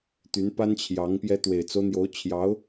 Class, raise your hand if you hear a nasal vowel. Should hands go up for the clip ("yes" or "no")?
no